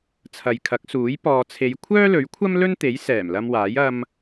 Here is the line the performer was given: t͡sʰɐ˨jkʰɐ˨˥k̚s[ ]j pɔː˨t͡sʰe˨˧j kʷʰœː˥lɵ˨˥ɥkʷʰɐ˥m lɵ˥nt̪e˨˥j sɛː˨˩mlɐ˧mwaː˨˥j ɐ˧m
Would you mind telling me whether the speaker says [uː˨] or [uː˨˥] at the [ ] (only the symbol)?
uː˨˥